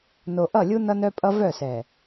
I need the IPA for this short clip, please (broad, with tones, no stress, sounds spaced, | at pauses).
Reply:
n o˨ ʔ ʌ˦˨ lʲ u˦ n ʌ˦ n œ˦ pʼ ʌ˦ v œ˦˨ s ɛ˨